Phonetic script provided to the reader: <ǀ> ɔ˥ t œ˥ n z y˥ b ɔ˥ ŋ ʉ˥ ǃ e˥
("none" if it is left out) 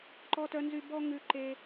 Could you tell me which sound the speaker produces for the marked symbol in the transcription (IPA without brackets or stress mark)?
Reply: ǃ